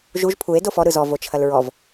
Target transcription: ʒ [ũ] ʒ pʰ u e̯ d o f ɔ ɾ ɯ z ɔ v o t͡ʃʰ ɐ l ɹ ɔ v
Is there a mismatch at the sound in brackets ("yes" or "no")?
yes